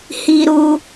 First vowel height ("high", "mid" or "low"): high